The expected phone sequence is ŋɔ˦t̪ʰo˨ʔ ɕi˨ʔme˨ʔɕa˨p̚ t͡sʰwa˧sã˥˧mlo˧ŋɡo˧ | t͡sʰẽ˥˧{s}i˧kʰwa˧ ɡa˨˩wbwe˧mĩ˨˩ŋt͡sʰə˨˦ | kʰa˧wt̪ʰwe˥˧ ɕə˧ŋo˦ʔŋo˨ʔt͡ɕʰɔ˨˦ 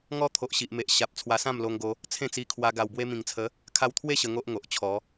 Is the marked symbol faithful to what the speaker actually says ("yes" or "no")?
no